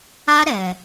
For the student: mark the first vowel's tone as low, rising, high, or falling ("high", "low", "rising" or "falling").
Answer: high